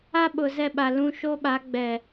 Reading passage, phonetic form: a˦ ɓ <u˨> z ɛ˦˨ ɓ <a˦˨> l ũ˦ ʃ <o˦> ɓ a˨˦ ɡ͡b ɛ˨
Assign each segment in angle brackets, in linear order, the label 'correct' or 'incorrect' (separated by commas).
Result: incorrect, incorrect, correct